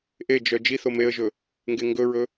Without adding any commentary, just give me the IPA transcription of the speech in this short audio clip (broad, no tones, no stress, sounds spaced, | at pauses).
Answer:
ʔ e d͡ʒ œ d͡ʒ i θ o m e ə̯ ʒ ɵ | ŋ ɡ e ŋ ɡ ɵ ɹ ɵ